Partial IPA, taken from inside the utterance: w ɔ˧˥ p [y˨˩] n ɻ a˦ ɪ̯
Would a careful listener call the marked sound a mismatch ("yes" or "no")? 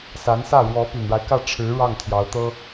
no